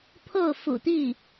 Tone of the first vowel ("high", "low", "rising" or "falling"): falling